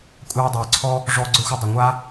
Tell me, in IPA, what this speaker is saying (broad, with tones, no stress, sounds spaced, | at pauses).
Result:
kʷʼ aː˥ dˤ ɤː˧ ǀʰ ɔ˥ | ʐ ɔː˥ ɡ͡ǀ ə˞˥ xʷ ə˥ dˤ ə˧ ŋʷ a˥